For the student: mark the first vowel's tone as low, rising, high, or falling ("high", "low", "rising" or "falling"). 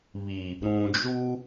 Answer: low